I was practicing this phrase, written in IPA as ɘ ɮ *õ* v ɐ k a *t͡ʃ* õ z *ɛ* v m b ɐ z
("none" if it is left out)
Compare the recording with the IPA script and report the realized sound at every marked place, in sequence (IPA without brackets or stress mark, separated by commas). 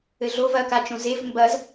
o, t͡ʃ, e